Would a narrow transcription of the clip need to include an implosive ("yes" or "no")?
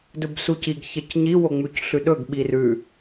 yes